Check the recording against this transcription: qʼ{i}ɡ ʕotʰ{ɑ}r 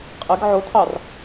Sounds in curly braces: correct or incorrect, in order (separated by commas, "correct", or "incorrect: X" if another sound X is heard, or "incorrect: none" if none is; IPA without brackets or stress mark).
incorrect: ɪ, correct